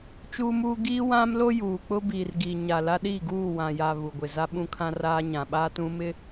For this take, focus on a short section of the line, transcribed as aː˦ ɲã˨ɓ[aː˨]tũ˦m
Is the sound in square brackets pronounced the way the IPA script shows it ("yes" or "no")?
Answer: no